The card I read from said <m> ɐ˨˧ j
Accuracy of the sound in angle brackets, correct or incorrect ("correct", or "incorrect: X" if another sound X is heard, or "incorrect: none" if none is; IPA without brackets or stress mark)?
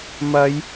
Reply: correct